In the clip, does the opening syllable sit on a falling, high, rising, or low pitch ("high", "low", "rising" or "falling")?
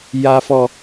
low